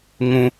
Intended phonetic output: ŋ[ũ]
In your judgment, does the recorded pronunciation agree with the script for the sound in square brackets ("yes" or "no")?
yes